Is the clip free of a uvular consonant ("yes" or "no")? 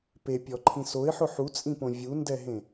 yes